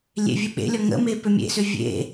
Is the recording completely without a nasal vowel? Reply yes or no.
yes